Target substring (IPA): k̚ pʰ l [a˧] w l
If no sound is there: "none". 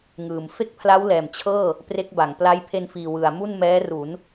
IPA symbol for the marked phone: a˦˥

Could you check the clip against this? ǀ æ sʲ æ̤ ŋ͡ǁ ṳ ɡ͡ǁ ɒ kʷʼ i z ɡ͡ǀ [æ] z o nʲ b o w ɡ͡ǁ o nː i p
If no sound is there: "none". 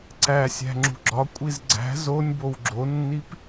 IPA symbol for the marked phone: æ̤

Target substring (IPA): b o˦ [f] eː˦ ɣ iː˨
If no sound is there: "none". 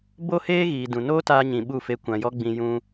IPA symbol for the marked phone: h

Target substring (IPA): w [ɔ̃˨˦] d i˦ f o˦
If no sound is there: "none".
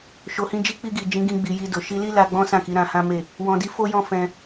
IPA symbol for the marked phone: ɔ̃˧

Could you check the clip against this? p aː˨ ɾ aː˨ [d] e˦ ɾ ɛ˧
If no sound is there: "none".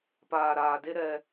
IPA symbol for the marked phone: d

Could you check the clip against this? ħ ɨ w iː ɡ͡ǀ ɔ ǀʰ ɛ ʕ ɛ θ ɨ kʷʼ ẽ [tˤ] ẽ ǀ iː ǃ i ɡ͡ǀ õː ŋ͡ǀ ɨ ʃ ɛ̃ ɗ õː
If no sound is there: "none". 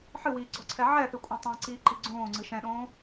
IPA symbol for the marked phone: tˤ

